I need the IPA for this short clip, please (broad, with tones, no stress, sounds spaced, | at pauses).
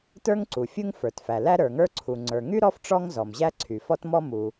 t ə˞˥ ŋ ǀ u˩ fʲ u˥ ŋ f ə˞˩ t f æ˩ l æ˥ ɾ ə˞˩ ŋ ə˞˥ ǀʰ u˩ ŋ͡ǀ ə˞˩ ŋ y˥ ɾ ɔ˥ f ʈ͡ʂ ɔ˥ ŋ z ɔ˩ m ʑ æ˥ ǀʰ y˩ f ɔ˥ t m ɔ˥ m u˩